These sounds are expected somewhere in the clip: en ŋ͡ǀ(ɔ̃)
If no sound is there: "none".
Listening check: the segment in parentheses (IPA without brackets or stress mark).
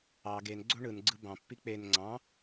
ɑ̃